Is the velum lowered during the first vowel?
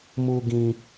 no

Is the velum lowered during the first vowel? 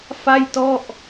no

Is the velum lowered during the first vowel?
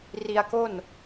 no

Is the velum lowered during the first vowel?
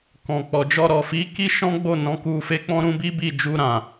yes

